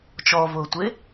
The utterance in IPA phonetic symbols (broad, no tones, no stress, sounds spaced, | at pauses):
t͡ʃ ɔ v ʊː tʷ e